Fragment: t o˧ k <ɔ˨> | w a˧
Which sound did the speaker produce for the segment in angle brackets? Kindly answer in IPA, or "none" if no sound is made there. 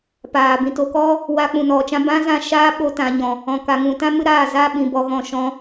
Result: ɔ˦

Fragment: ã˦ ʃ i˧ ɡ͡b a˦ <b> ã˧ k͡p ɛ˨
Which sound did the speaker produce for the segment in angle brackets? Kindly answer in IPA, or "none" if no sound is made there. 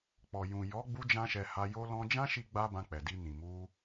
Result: b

